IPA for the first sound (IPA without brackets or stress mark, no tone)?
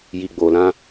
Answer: j